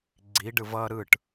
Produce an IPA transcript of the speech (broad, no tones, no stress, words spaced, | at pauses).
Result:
ɡ͡ǀiɖɯv ʌ ɾɯʈ